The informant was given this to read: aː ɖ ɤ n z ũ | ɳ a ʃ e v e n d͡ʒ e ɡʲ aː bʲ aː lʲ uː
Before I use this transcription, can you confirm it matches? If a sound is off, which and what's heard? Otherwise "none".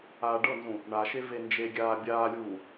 none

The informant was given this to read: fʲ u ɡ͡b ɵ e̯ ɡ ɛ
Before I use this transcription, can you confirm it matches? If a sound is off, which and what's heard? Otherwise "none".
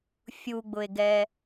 ɵ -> ʊ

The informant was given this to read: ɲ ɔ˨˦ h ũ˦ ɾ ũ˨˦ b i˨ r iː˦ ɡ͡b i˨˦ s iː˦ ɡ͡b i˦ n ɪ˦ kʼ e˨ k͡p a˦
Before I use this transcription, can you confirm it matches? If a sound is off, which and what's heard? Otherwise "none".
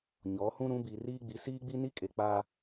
ɪ˦ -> i˦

